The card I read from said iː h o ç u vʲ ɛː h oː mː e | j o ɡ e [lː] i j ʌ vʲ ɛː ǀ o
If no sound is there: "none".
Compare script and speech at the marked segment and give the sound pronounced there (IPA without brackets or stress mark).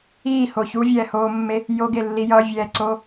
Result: lː